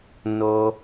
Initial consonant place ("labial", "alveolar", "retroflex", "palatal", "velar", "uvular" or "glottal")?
alveolar